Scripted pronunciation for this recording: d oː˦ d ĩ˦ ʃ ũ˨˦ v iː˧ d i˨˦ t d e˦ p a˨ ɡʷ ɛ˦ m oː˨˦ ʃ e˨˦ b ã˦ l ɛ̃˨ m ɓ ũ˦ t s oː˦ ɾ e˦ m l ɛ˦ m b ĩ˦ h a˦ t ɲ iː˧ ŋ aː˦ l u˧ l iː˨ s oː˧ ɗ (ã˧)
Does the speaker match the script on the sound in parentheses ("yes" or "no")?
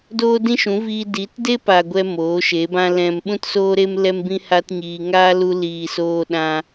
yes